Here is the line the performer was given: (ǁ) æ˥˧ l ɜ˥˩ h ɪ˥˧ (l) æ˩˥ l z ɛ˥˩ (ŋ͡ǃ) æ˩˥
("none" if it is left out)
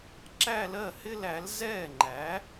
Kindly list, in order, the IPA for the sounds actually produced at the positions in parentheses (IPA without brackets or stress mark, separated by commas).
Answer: ǁ, l, ŋ͡ǃ